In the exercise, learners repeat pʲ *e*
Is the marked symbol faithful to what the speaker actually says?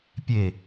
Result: yes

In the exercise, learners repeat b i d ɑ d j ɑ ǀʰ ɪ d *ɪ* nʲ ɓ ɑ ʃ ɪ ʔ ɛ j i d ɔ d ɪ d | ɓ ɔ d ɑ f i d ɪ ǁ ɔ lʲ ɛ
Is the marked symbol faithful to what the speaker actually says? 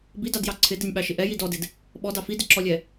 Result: yes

